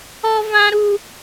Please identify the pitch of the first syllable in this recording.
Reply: high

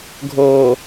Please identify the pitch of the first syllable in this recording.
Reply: low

